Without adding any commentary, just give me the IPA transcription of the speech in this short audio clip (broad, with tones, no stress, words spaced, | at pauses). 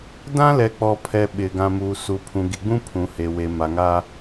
dã˦lɛ˨k͡pɔ˨ pʰɛ˨ ɓɪ˨ ɡã˨muː˨ su˨pʰũ˨ ɡi˨ɡ͡bũ˦ pʰũ˨he˨we˨ ma˨ŋa˦